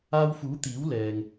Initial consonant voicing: voiced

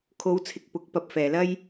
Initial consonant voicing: voiceless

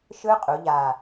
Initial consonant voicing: voiceless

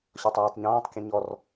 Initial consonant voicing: voiceless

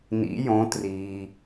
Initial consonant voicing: voiced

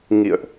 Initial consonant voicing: voiced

